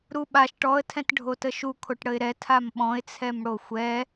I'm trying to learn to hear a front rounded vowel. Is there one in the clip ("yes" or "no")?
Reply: no